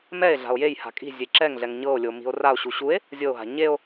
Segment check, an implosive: absent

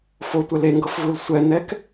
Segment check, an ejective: absent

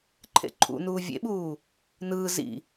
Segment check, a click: present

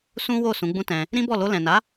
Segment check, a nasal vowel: present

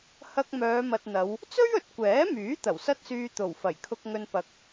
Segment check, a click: absent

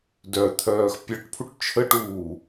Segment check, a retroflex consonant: present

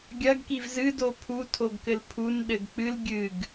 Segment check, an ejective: absent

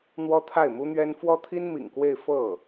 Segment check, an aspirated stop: present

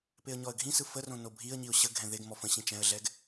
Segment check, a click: absent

